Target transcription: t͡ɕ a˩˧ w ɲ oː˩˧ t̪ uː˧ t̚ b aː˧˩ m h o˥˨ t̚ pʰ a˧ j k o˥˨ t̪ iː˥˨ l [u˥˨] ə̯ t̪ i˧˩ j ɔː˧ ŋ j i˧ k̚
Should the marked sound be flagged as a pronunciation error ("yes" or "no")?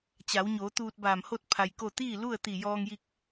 no